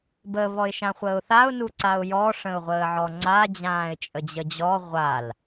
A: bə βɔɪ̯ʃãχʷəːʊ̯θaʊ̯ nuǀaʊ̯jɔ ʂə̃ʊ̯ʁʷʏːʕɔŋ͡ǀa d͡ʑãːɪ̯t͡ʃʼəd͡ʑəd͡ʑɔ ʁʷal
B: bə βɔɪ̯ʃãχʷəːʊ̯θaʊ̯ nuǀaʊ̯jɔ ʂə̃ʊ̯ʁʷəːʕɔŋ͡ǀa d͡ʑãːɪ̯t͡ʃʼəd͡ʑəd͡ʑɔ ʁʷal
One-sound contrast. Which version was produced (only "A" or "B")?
B